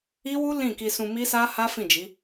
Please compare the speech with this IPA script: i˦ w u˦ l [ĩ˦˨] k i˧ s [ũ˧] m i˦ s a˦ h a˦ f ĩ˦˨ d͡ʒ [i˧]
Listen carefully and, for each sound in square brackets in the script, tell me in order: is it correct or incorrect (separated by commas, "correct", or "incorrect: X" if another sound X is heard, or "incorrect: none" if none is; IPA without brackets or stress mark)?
correct, correct, incorrect: i˨˦